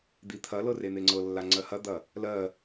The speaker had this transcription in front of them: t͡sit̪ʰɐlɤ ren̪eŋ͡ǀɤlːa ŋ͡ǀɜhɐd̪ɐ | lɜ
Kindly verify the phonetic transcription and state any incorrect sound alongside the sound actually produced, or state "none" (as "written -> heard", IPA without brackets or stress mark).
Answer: t͡s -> d̪